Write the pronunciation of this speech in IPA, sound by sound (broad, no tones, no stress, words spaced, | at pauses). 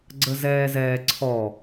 ɡ͡ǀəzɛːzɛːǀʰɔ